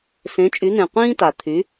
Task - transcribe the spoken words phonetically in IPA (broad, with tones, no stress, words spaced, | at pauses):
sẽ˩˥t͡ʃʼy˩˥n̪ẽ˩ qʷĩː˥ta˩ t̪ʰy˩˥